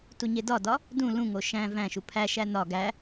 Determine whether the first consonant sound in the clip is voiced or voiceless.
voiceless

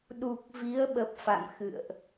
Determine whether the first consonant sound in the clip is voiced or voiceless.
voiced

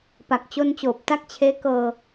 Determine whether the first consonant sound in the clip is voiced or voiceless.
voiceless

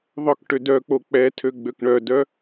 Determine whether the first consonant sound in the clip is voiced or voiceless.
voiced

